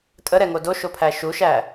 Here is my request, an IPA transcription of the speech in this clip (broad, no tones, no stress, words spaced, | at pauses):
tʼəɾɛŋo doʃopʰæ ʃuʃæ